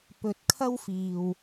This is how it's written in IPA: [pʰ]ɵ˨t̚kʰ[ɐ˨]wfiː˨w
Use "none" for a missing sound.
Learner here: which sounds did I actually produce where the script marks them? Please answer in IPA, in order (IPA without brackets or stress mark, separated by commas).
p, ɐ˥